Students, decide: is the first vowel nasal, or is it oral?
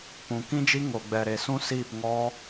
nasal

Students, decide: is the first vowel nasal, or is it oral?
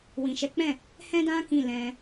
nasal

